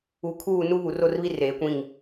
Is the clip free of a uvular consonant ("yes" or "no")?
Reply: yes